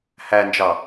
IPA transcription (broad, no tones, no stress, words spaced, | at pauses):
hænd͡ʒɑ